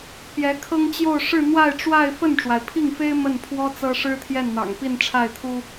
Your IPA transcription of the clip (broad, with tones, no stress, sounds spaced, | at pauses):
p j ɛ˧˥ kʰ ɤ˥ ŋ t͡ɕ j o˥˧ ʊ̯ ʂ ɻ̩˥˧ n̪ w a˥˧ ɪ̯ ʈ͡ʂ w a˥˧ ɪ̯ f ə˥˩ n ʈ͡ʂ w a˩ ɪ̯ pʰ i˥˩ ŋ f e˥ ɪ̯ m ə˥˩ n pʰ w ɔ˥ t͡s ɤ˥ ʂ ɻ̩˥ t̪ʰ j ɛ˥˩ n n̪ ɑ̰˨˩ ŋ p i˥˧ n ʈ͡ʂʰ a˥˩ ɪ̯ t̪ʰ u˥